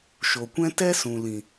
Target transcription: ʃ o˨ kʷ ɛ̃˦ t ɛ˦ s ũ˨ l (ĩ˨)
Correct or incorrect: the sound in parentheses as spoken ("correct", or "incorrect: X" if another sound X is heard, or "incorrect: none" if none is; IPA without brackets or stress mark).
correct